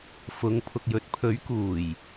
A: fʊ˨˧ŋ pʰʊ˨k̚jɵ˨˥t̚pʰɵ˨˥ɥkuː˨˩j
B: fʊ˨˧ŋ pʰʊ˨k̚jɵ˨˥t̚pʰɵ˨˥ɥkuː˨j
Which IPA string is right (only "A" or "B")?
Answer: A